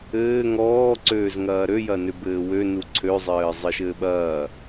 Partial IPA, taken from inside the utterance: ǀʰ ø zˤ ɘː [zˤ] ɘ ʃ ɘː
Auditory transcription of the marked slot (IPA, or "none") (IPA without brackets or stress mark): zˤ